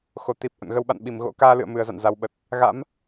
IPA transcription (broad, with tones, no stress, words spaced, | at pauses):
xo˨˩t̪i˨˩p̚ ʔə̰˧˨nɣə˧w ɓa̰˧˨n ɓi˧˩mɣo̰˧˥ kaː˧lɨ̰˧˨ə̯ mɨ˨˩ə̯za̰˧˨n za˨˦wɓə˨˩t̚ | ɣa̰˧˥m